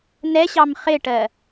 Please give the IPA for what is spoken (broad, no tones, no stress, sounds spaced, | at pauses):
n ɛ ɕ ɑ m χ ɪ ʈ ɜ